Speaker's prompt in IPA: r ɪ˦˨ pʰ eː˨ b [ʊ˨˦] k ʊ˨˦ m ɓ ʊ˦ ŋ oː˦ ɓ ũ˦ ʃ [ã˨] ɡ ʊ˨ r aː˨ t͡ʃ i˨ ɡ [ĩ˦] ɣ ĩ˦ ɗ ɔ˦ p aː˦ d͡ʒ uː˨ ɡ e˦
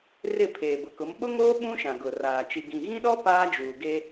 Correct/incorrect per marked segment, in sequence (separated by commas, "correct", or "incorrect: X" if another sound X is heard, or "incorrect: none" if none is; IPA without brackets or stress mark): incorrect: ʊ˨, correct, incorrect: ĩ˨